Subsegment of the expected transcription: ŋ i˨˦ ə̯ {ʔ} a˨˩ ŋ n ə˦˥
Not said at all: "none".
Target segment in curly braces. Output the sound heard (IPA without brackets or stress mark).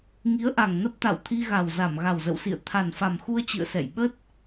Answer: ʔ